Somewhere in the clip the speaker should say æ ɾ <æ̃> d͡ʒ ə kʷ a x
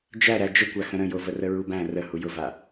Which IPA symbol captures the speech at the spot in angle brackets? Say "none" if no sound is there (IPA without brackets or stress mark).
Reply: æ